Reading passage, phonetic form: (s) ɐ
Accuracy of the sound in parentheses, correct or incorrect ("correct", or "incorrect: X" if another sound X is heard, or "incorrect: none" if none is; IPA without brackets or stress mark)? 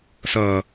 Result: correct